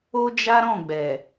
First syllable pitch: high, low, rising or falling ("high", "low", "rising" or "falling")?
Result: high